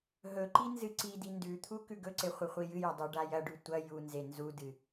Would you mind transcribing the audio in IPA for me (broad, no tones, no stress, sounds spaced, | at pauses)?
ɦ ɵ ǃ i n z ɨ ǀ i d i n d ʉ t̪ʰ u k ʉ ɡ ɵ ǀ e χʷ ɨ χʷ i j ɨ j ɐ dˤ o ɖ a j ɐ ɖ ʉ tʷ ɐ j u n z e n z u d ɨ